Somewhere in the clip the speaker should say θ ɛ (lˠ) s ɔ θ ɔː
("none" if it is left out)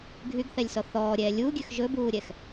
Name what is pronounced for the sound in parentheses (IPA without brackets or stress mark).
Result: lʲ